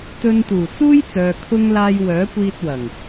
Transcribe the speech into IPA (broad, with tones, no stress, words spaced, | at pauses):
t̪ɵ˧nt̪uː˨˩t͡suː˥j t͡sœː˧kʰʊ˥ŋ laː˧j wœː˨˥kʷiː˧t̚ wɐ˨˩ŋ